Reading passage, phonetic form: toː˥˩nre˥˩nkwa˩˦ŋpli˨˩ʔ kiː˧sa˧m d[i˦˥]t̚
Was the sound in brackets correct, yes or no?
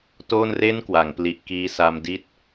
no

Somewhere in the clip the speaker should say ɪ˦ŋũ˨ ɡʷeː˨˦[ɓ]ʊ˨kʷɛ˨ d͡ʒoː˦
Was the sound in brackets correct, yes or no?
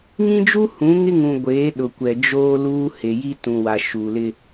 no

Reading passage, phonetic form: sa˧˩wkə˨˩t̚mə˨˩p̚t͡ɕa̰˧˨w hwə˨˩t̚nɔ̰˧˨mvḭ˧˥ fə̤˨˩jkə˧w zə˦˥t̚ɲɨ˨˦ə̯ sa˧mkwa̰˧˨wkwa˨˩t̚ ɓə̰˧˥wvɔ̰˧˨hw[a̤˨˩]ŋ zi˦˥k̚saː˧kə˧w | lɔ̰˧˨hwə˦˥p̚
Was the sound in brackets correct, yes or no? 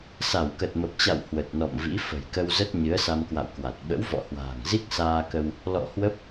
no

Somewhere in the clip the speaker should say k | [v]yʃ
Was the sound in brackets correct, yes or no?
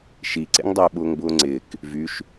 yes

